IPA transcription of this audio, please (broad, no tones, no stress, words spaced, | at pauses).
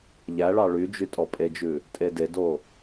ʎæɭɑ ɭyd͡ʒy tʼɔpʼed͡ʒʉ | tʼededo